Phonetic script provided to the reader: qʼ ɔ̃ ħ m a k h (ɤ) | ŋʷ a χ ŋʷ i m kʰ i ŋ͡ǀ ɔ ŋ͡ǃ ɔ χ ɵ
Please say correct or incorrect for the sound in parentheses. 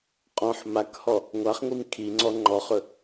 incorrect